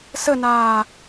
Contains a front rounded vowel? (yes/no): no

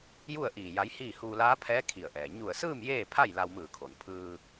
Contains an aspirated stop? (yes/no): yes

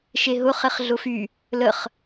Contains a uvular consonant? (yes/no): yes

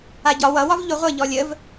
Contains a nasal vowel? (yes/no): no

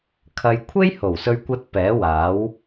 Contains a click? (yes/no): no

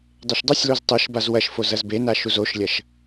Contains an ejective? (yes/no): no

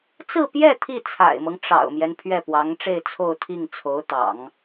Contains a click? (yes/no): no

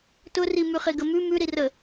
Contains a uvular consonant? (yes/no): yes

